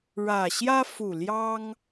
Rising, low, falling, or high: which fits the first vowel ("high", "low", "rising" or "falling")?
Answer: low